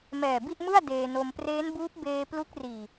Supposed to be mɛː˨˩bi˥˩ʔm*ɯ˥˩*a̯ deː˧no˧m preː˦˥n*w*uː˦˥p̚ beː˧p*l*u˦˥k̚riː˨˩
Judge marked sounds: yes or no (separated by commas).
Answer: yes, no, yes